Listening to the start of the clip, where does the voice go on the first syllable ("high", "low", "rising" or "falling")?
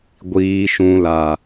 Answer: low